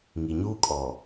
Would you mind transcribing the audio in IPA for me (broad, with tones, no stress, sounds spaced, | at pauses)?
ŋ i˨ ɲ uː˦ kʼ ɔ˨